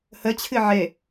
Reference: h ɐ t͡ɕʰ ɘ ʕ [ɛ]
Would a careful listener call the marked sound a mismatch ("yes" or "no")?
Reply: no